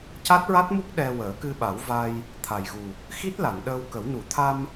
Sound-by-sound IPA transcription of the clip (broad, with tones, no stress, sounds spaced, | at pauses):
c a˦˥ t̚ ɹ a˦˥ t̚ m u˦˥ k̚ ɗ ɛ˧ w əː˨˩˦ k ɨ˧ ɓ a˨˩˦ w v a˧ j | t̪ʰ a˨˩ j ɣ u˨˩ | x i˦˥ t̚ l a˨˩˨ n ɗ əː˧ w k ə˨˩˦ w n u˨˩˨ t̪ʰ a˧ m